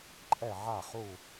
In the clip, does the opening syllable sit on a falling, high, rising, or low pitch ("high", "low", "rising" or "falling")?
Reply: falling